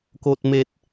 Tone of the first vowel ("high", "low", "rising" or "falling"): high